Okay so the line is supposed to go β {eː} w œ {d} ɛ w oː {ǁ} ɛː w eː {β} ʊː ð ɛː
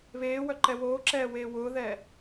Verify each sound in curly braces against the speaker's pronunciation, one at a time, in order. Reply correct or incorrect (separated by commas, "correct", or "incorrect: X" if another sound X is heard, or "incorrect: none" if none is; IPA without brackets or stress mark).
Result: correct, incorrect: ǃ, correct, incorrect: w